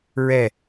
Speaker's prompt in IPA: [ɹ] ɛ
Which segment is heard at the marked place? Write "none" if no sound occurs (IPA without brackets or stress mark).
ɹ